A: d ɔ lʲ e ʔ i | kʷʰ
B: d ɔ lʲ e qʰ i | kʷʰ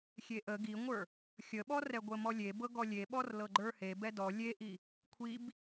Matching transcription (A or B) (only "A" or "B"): A